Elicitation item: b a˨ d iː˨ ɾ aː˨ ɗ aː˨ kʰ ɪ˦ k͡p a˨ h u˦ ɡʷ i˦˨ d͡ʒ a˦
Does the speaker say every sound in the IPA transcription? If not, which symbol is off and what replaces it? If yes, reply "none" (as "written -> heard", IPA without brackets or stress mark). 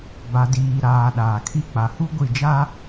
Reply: ɪ˦ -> i˦